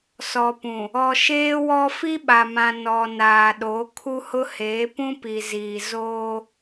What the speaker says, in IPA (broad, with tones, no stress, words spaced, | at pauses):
sɔ˨pũ˨ | ɔ˨ ʃeː˦wɔ˦ fi˦ɓa˨mã˨ nɔ˨naː˨ɗo˨˦ kʰu˦hʊ˦heː˨˦ pũ˦pi˨ziː˨ zoː˦